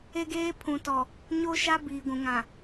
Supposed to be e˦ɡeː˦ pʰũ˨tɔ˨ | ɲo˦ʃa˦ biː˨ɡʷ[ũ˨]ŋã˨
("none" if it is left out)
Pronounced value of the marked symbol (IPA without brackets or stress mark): ũ˨